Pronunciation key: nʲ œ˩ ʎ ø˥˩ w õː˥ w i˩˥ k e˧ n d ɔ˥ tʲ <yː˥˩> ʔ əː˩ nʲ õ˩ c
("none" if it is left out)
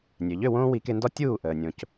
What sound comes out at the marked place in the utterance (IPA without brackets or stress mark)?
uː˥˩